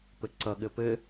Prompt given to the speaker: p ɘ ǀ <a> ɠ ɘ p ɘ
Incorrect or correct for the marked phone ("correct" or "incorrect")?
incorrect